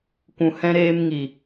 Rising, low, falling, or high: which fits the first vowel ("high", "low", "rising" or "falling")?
low